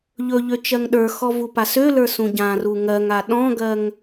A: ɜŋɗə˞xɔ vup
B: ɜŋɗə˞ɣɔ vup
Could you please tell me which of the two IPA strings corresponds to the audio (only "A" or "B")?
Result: A